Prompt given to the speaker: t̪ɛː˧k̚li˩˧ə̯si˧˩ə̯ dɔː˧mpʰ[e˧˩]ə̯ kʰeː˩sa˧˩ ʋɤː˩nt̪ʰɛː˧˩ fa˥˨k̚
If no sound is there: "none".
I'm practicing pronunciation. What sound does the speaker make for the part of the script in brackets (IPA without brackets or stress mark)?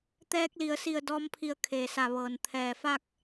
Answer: i˧˩